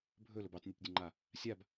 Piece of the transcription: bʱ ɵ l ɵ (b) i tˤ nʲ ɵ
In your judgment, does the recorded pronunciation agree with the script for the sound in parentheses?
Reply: yes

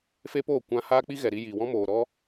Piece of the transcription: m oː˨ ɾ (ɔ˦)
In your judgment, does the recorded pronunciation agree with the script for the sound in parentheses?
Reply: yes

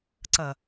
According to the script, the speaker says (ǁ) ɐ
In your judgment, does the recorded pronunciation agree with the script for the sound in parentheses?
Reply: no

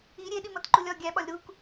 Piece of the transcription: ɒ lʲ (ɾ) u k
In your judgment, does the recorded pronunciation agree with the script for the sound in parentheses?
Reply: yes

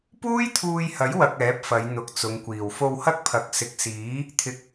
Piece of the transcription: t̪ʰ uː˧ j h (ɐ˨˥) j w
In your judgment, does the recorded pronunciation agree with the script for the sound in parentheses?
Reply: yes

